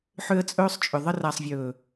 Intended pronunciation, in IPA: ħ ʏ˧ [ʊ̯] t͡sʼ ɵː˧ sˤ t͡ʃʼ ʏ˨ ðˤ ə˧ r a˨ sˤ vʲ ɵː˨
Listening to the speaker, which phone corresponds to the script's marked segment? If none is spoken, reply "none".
ə̯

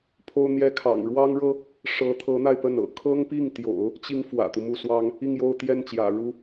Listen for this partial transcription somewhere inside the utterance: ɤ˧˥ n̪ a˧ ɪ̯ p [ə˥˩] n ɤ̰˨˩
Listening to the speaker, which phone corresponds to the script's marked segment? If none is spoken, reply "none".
ə˥˩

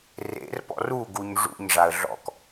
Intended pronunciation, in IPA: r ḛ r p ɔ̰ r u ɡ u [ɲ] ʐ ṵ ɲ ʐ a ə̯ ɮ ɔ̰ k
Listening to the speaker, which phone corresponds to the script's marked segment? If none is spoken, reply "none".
ɲ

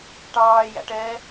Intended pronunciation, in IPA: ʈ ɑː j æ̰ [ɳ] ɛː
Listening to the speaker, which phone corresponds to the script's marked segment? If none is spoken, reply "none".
ʈ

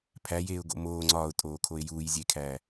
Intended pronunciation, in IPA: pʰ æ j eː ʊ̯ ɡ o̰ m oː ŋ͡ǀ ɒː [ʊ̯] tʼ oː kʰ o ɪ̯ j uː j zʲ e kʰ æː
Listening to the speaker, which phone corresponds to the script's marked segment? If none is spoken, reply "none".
ʊ̯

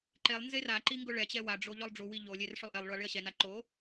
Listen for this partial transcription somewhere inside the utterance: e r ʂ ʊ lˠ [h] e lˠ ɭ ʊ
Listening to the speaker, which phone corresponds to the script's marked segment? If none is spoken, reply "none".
ʔ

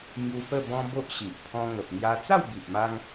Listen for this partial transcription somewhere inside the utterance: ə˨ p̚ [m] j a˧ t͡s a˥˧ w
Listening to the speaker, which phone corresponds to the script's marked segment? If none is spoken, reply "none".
ŋ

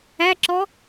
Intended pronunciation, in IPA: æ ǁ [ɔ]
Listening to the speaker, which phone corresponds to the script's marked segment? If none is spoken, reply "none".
ɔ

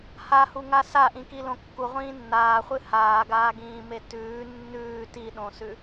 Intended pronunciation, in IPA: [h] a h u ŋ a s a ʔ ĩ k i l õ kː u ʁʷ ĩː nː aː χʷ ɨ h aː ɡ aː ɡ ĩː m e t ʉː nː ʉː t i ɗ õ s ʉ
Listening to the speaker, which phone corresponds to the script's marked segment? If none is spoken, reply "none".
h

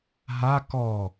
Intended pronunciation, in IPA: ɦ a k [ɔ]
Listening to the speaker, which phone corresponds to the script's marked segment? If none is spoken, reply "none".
ɔ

